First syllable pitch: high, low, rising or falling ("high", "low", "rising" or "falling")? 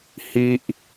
high